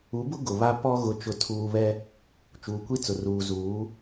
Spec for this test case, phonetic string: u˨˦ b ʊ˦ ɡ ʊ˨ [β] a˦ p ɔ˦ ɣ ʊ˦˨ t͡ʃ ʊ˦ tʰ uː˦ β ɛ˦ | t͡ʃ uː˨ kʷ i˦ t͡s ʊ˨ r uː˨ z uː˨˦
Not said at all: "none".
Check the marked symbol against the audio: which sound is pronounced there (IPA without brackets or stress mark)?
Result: β